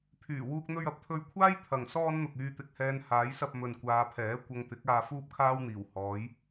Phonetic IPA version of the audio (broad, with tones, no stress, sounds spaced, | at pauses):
pʰ yː˨˩ w uː˥ k̚ n̪ ɵ˥ ɥ ɐ˨ p̚ t̪ʰ ɵ˧ ɥ kʷʰ aː˥ j t̪ʰ ɐ˨ ŋ s ɔː˥ n n̪ ʊ˨ k̚ yː˧ t̪ ɪ˧ k̚ h ɛː˧ n h aː˨˥ j s ɐ˧ p̚ m ɵ˨ n kʷ aː˨˧ pʰ ɛː˨˥ kʷ ɐ˧ ŋ t̪ ɪ˨˥ k̚ aː˧ f uː˥ p̚ kʰ aː˥ w n̪ iː˨˩ w h ɔː˨˥ j